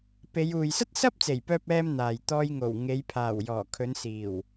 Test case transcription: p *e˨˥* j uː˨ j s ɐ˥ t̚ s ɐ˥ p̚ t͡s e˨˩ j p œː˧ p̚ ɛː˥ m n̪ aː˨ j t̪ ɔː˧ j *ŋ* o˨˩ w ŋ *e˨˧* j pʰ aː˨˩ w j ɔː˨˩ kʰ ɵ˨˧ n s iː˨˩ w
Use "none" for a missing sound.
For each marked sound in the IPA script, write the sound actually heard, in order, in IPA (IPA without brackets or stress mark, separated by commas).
e˨˧, ŋ, e˨˧